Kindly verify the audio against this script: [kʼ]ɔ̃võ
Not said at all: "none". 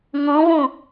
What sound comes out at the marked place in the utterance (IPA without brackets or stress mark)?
ŋ